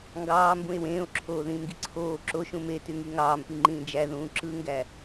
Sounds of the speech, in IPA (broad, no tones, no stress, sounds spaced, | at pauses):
ŋ ɡ ɑː m b ũ e̯ w ẽː o̯ ǁʰ oː ð ĩː m ɡ i ǀʰ oː ǁ o ʃ ũ m e t y ŋ i ŋ ɑː m p i ŋ͡ǃ ĩː d͡ʒ æ ð ũː ǁ ɯ ŋ ɡ æ